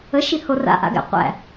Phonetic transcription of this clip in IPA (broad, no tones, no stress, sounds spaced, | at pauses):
ə ʃ i h o r a̰ ʔ a̰ ɡ æ̰ qʷ æ̰